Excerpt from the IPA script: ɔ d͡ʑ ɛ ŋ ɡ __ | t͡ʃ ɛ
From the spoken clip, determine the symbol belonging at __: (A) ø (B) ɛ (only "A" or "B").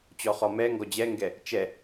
B